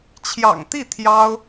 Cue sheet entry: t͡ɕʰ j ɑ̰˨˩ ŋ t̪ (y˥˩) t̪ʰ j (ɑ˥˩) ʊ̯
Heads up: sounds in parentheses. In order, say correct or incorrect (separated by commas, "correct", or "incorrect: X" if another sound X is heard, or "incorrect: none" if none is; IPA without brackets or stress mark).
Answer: incorrect: i˥˩, incorrect: ɑ˥